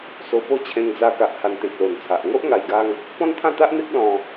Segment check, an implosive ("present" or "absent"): absent